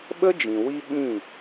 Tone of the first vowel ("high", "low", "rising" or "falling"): high